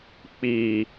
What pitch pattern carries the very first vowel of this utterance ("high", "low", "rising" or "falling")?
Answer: low